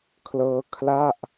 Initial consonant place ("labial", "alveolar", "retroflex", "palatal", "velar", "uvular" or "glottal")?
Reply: velar